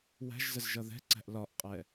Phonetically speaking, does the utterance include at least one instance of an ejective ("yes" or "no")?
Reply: yes